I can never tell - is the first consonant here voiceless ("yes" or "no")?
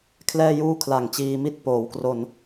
yes